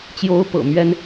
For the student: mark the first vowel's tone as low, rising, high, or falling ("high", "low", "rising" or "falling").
rising